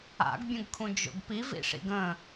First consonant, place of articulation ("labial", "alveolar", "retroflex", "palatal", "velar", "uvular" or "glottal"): velar